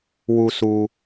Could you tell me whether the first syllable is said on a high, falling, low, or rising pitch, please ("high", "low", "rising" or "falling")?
low